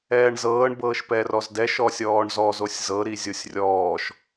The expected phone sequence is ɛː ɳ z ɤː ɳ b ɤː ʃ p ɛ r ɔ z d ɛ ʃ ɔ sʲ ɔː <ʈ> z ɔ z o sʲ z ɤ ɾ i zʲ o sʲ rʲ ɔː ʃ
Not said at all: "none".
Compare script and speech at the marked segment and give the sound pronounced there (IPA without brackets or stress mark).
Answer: ɳ